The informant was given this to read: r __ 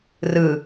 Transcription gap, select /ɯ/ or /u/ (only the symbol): ɯ